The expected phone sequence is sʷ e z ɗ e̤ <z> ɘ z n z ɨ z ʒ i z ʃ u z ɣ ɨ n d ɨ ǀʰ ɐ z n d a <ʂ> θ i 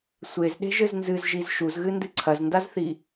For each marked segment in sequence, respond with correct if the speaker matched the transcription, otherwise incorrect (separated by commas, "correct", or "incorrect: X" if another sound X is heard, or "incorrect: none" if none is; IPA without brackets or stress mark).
incorrect: ʒ, incorrect: z